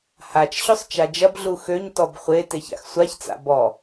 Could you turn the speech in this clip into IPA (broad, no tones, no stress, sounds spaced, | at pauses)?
h a t͡ʃ ɕ ɵ sˤ t͡ʃ a d͡ʒ ɐ b ɮ u x ø ɲ t ɔ b χʷ e t e ç a̰ x sʷ a ç t͡s a̰ b ɔ